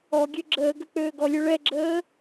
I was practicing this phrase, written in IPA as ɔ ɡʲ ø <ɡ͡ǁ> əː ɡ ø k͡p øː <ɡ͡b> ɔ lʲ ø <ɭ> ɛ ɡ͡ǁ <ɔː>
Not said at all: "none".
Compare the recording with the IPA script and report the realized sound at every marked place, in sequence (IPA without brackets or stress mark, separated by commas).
ɡ͡ǁ, ɡ, ɭ, əː